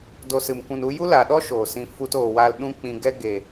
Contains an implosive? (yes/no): yes